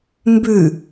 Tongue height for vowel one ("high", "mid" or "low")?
high